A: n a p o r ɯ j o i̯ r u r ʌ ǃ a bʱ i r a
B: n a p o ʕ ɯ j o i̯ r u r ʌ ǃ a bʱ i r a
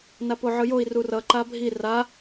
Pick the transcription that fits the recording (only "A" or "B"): B